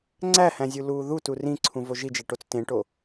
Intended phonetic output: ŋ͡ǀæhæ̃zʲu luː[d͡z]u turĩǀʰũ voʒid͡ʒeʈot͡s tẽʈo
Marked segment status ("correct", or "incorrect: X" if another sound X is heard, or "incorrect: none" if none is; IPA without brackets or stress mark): incorrect: ð